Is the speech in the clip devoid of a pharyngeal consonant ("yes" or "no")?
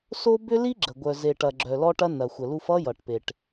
yes